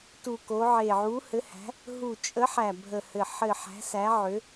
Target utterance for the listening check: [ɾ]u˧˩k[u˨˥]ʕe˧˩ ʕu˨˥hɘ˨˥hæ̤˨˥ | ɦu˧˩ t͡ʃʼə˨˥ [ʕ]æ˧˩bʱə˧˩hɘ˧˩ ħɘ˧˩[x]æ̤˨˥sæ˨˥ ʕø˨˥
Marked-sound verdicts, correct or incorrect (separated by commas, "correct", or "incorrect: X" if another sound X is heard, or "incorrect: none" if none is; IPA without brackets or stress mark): incorrect: t, incorrect: o˨˥, incorrect: ħ, incorrect: ħ